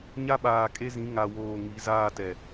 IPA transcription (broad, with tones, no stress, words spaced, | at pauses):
ɲa˦ɓaː˨kʼe˦zĩ˨˦ ŋa˨woː˨ ŋi˨˦zaː˦˨tɛ˨